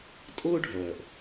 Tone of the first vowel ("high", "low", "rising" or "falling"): high